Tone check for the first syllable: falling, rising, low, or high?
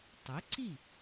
rising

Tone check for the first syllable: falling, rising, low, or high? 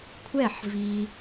falling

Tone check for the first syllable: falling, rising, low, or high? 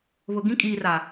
low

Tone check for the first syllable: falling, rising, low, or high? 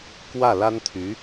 falling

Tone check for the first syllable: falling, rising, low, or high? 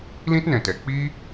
high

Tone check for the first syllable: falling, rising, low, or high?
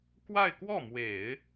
falling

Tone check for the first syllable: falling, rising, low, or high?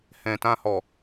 low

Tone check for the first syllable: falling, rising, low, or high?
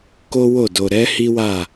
high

